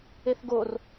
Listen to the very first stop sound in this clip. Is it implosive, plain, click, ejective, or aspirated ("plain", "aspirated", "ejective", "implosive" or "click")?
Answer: plain